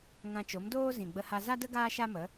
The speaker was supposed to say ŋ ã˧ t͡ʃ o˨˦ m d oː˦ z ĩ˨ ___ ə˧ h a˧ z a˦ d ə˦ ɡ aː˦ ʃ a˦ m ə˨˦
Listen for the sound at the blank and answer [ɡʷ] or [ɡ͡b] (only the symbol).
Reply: ɡ͡b